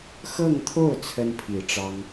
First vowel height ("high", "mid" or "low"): mid